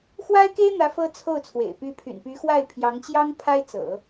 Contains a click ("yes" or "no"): no